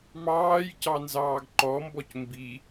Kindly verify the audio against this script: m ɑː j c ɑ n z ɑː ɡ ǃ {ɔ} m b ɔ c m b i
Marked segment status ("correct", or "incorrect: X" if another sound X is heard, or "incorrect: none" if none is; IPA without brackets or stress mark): correct